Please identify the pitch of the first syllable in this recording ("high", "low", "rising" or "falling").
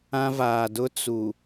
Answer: high